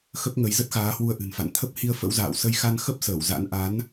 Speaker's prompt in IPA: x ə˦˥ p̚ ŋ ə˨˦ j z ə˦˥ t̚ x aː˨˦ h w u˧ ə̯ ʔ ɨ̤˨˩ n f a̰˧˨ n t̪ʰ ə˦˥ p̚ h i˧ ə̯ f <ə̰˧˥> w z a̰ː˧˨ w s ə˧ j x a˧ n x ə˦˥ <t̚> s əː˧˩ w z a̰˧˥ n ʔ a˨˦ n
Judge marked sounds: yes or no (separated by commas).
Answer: yes, no